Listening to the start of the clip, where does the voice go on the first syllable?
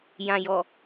low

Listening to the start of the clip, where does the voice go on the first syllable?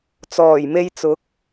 low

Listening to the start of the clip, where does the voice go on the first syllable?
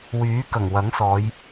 rising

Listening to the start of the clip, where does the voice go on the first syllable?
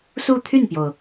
falling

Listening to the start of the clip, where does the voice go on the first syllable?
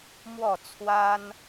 falling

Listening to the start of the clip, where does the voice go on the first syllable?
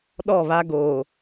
falling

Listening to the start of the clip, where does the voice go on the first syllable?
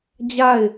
falling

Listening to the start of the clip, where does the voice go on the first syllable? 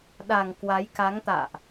low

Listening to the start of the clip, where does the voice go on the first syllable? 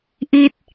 falling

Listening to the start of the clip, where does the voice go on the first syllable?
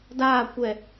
falling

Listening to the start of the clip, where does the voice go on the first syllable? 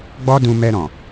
high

